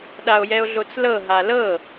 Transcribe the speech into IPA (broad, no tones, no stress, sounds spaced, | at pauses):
ɗ a o̯ j ɛ o̯ ɮ o t͡s l ɤ ɦ a l ɤ